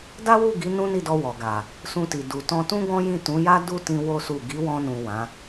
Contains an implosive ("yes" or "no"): no